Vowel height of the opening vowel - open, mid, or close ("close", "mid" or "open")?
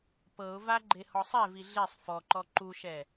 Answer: mid